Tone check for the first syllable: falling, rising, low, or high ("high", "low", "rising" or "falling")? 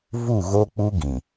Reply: falling